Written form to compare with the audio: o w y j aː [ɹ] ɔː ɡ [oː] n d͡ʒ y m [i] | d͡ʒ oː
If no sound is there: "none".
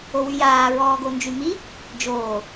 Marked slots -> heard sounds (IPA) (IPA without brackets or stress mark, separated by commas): ɹ, o, i